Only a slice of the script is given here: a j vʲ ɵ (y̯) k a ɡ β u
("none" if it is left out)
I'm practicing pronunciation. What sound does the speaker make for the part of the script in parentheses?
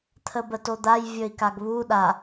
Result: i̯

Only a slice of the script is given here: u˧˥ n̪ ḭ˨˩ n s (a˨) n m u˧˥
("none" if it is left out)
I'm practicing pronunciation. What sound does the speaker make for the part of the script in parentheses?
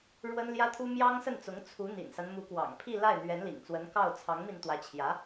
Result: a˦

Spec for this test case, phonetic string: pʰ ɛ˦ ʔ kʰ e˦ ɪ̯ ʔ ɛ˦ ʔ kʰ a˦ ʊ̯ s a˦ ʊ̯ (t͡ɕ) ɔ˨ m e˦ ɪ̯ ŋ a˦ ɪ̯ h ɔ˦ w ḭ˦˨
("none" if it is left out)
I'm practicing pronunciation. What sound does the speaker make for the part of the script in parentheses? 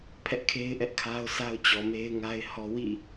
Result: t͡ɕ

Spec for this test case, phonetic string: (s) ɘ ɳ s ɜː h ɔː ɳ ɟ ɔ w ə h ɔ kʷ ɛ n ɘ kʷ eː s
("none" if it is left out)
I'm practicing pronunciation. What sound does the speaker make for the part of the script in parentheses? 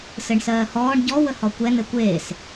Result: s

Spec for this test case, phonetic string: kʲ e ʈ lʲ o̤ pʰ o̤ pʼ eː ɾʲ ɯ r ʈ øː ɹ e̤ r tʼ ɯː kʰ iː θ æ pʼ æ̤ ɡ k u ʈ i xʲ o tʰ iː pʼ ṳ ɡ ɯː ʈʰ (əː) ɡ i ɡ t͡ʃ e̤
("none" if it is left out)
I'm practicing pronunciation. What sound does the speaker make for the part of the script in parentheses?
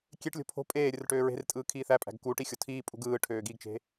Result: øː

